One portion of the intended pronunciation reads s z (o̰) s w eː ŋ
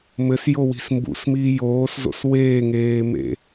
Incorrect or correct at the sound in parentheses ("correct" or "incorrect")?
correct